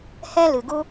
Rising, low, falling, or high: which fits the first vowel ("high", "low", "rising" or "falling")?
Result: high